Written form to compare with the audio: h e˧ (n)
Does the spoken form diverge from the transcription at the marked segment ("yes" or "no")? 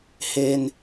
no